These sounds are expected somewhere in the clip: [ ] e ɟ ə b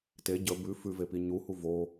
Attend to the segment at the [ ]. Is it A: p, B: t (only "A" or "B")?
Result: B